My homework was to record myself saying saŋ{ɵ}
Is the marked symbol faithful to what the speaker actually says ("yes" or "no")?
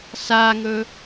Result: yes